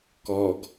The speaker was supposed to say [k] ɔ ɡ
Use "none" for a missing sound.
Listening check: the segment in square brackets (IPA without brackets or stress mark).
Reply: k